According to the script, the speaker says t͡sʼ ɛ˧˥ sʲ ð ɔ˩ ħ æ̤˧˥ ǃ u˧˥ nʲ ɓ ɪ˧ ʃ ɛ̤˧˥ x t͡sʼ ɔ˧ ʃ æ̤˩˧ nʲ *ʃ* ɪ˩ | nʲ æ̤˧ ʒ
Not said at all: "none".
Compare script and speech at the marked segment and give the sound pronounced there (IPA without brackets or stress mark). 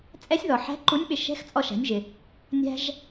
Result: ʒ